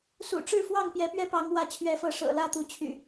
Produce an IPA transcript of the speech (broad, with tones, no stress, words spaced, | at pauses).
sṵ˨˩ʈ͡ʂɻ̩˥˨fwɑ˥˨ŋ pjɛ˨˦pɥɛ˦ pɑ˨˦ŋwä˨˦t͡ɕʰɥɛ˨˦fɤ˨˦ ʂɤ̰˨˩lä˥˨t̪u˨˦t͡ɕʰy̰˨˩